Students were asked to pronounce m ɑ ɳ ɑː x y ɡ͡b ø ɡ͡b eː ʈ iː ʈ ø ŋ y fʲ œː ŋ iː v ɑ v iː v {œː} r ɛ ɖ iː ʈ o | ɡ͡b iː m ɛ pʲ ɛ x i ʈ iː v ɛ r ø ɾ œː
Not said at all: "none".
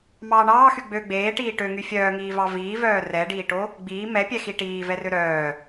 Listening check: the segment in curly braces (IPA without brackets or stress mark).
œː